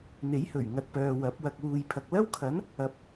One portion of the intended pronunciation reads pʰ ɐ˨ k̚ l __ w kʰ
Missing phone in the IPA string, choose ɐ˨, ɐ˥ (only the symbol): ɐ˥